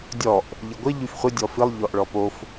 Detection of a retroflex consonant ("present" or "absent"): present